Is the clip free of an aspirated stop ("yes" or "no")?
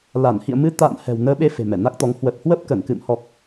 yes